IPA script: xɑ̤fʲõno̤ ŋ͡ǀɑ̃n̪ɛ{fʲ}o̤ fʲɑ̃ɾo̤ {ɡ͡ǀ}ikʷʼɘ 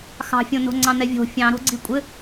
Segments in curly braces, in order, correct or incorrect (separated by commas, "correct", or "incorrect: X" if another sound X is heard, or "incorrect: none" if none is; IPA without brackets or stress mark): incorrect: vʲ, correct